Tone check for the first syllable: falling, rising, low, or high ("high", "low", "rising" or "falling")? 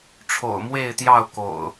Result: low